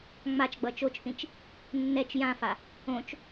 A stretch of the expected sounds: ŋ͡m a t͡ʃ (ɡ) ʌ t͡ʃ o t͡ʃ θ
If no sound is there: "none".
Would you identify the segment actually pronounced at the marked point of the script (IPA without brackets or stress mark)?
ɡ͡b